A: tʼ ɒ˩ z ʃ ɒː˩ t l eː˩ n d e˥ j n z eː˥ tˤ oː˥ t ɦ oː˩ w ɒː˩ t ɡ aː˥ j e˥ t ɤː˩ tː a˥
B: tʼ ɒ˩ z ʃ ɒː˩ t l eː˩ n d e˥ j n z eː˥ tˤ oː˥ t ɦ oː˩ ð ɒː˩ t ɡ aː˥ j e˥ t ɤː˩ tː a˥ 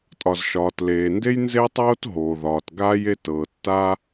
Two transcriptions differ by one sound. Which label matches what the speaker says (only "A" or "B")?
B